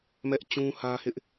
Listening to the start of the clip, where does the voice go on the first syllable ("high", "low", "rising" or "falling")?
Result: high